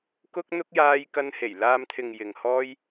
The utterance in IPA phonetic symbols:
k ʊ˥ k̚ n̪ ʊ˥ k̚ j aː˥ j k ɐ˥ n h e˨˩ j l aː˧ m t̪ʰ ɪ˨ ŋ j ɪ˨ ŋ h ɔː˥ j

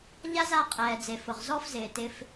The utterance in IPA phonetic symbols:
ʎ a˦ z a˧ qʼ ɛː˨ d͡z e˨ f ʊ˨ ʁ z ɔ˦ f z ɪː˨ t ɪ˧ f

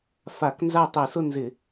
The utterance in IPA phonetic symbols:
f a˧˩˧ k n z a˥˨ tˤ i˧˩˧ s ʊ˥˨ n z ɪ˧˩˧

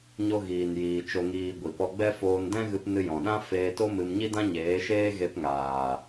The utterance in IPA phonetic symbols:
ɲ o˧ ɣ iː˨ n j iː˨ t͡ʃ o˨ ŋ iː˨ ɡʷ i˨ p ɔ˧ ɡ͡b ɛ˦ f oː˧ n d ɛ̃˦ ɣ ɨ˧ p n ɨ˧ j ɔ̃˨ ɗ ã˦ f eː˧ t o˦ m ɨ˧ m ɲ i˦ d ã˦ ɲ eː˨˦ ʃ eː˦ ɣ e˧ p ŋ aː˨

